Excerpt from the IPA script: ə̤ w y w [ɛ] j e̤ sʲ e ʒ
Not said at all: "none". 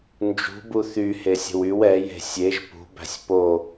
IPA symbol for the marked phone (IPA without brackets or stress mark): ɛ